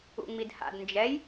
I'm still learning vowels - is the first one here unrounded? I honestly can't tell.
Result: no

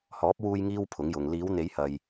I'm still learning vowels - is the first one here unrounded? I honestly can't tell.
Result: no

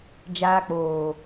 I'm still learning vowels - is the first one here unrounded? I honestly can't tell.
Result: yes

